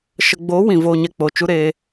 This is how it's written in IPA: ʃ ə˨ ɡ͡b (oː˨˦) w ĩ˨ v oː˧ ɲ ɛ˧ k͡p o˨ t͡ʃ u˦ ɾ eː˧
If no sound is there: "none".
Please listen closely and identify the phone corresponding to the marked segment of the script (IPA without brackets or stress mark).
oː˨˦